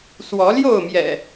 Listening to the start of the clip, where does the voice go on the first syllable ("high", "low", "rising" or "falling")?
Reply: rising